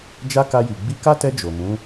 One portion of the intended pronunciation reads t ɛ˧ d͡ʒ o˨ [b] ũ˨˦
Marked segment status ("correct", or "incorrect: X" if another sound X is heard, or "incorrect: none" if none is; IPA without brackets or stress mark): incorrect: m